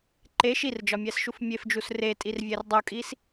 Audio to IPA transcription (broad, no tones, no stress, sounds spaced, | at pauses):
ǃ e ʃ i r d͡ʒ ɒ mʲ æ s ʃ u f mʲ e f d͡ʒ u s r e tʼ i r vʲ æ r dˤ u kʼ i s